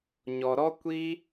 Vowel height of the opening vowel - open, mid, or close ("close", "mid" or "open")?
mid